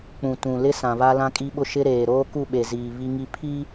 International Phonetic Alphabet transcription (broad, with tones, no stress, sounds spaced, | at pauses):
k͡p ũ˨ t ũ˨ l ɪ˦ s ã˨ β a˦ l ã˦ kʼ i˦ ɓ ʊ˦ ʃ ɪ˦ ɾ eː˨ ɾ oː˦ k u˦˨ ɓ e˨ z iː˨ β i˦ ŋ i˦ pʰ i˦